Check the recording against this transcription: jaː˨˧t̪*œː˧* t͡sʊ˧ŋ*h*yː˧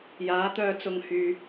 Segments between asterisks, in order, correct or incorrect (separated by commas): correct, correct